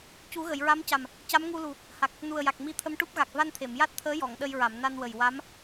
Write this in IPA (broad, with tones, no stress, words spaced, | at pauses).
cu˨˩˦ɣə˨˩˨jɹa˧˥mca˨˩m | ca˧˥m ŋu˧lu˨˩ | ha˨˩k̚ | nu˨˩ə̯ja˨˩k̚ mi˧˥t̪ʰə˧mʈu˦˥p̚ɣa˨˩k̚ va˧nt̪ʰe˨˩˨mja˦˥t̚t̪ʰəː˧˥ jɔ˨˩˨ŋɗə˧jɹa˨˩˨m na˧nwə˨˩j wa˧˥m